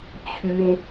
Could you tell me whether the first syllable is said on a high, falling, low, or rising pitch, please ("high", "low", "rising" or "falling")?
high